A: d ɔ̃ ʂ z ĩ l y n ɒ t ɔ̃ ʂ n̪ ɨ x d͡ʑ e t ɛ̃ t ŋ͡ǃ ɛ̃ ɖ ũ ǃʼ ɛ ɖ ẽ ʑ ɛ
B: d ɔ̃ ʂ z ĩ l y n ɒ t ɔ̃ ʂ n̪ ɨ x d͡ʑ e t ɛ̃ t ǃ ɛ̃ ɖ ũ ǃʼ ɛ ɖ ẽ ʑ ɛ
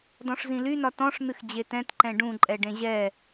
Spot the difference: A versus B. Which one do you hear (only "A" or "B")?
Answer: B